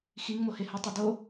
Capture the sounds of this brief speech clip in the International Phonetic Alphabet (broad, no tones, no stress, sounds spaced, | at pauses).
x i ŋ m o h e h ɵ tˤ e d o